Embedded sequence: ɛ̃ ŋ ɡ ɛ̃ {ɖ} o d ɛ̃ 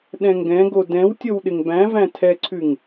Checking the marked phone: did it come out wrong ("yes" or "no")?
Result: yes